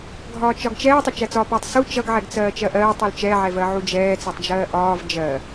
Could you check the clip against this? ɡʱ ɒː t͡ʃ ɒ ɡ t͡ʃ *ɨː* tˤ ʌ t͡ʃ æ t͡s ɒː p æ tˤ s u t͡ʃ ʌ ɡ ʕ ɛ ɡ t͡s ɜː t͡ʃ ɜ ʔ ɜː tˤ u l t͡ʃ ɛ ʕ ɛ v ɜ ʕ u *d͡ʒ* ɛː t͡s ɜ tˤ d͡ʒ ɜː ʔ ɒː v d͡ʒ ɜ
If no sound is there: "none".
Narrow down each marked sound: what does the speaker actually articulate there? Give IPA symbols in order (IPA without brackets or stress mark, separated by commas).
ɛː, d͡ʒ